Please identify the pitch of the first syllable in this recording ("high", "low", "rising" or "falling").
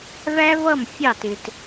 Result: high